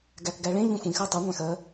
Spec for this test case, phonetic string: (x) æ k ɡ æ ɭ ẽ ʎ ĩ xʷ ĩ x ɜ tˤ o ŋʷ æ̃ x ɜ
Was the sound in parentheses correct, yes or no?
no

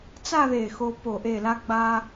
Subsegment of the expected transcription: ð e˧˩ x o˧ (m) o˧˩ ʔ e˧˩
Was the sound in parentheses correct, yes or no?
no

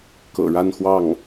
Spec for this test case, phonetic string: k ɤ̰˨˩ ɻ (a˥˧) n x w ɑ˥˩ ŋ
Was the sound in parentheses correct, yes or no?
yes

